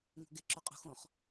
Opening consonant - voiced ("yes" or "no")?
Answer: yes